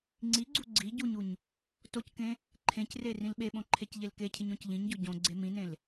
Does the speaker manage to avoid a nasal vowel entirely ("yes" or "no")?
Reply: no